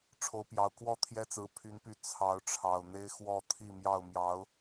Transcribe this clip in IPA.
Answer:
ʈ͡ʂʰ o˨˦ ʊ̯ p j ɑ˨˩ ʊ̯ k w ɔ˥˨ t̪ʰ j ɛ˦ t͡s ɹ̩˨˦ pʰ y˨˦ n p y˨˦ t͡sʰ ɑ˨˦ ʊ̯ ʈ͡ʂʰ ɑ˨˩ ʊ̯ n̪ e˦ ɪ̯ x w ɔ˥˨ t̪ʰ i˥˨ m j ɑ˥˨ ʊ̯ m j ɑ˨˦ ʊ̯

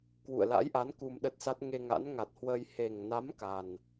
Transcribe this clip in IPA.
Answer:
k w ṵ˧˨ ə̯ l a̰˧˥ j ʔ a˨˦ n k u˧ m ɗ ə˦˥ t̚ s a˦˥ t̚ ŋ e˧ ŋ a̰˧˥ n ŋ a˨˩ t̚ h w əː˧ j h e˨˩ ŋ n a˨˦ m k a˨˩ n

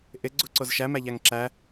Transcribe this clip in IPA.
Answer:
ʔ ɪ ɡ͡ǀ u ǀ o z ʃ æ m æ ʎ æ ŋ ǁ æ

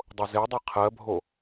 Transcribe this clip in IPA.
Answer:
dˤ o z e dˤ e qʰ ɜ bʱ o

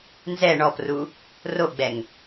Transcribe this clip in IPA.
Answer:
n z ɛ ɳ ɔ p r u | r o ɡ͡b ɛ ŋ

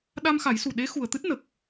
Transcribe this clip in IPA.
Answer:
ɗ a˧ m x a˨˩˦ j s u˨˩ ɗ e˧˥ x u˨˩ ə̯ t̪ ɨ˦˥ t̚ n ə˨˩ k̚

